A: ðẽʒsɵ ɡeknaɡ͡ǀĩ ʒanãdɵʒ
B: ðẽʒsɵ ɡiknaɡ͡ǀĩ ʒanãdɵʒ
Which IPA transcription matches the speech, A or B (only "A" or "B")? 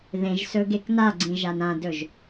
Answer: A